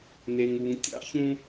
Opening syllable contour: low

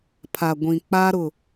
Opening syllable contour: low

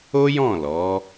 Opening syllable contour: high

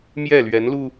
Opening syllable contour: falling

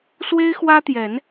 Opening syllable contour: high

